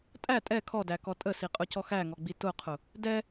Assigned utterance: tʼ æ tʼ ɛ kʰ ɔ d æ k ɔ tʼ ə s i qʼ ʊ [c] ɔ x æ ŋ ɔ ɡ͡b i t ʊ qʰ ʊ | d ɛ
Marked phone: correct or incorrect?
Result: correct